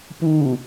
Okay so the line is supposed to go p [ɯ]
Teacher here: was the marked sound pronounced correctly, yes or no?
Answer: no